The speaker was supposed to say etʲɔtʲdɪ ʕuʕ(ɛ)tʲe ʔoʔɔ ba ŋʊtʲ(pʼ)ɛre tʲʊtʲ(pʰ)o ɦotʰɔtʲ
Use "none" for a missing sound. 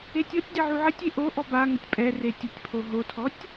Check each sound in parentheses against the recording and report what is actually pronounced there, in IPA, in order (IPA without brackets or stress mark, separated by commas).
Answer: ɪ, pʼ, pʰ